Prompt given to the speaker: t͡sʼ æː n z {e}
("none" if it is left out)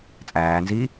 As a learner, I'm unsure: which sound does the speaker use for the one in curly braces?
i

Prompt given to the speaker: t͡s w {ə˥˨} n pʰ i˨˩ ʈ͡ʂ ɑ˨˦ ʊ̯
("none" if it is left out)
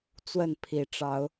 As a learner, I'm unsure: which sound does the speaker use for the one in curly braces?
ə˥˨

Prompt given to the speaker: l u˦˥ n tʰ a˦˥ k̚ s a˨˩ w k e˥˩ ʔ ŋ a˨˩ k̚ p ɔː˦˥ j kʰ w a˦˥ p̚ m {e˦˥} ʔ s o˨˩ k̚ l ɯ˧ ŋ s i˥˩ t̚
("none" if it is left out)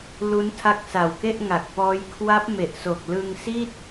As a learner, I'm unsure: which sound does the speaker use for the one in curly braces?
e˨˩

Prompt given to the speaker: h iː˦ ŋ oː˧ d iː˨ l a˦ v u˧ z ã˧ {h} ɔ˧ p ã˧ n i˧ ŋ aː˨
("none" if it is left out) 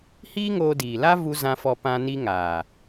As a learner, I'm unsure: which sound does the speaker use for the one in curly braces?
f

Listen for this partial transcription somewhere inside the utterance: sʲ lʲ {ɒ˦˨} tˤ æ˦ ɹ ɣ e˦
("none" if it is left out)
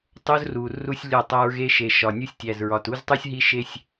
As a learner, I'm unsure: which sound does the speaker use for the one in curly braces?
ɒ˦˨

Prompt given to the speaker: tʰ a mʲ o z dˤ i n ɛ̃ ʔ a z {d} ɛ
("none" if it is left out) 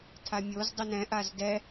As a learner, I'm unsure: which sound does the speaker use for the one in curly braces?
d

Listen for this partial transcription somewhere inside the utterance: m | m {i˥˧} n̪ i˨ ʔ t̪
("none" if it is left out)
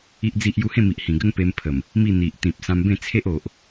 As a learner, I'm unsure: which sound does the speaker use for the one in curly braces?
i˥˧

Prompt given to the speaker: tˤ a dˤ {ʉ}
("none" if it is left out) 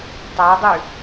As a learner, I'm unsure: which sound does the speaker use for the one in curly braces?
ʉ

